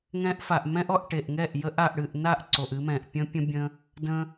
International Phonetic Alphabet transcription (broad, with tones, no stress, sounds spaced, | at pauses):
ŋ ɛ̃˦ ʔ f a˨ ʔ m ɛ̃˦ ʔ ɔ˧ ʔ ʈ e˨ ʔ ŋ ɛ˦˨ ʔ j ə˧ ʔ a˨ ʔ ɽ ɨ˨ ʔ n a˦˨ ʔ ǀ o˨ ʔ ɨ˧ m ɛ̃˨ ʔ pʲ ə̃˦ pʲ ə̃˦ bʲ ə̃˧ | d ə̃˧